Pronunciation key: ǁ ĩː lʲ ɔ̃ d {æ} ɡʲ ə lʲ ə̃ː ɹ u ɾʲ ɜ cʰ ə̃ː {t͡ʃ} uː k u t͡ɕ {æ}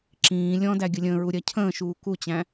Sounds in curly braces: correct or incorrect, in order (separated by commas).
correct, incorrect, incorrect